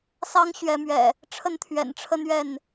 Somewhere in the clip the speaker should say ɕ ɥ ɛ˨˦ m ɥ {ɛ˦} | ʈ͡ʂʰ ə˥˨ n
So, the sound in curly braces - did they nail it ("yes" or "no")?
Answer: no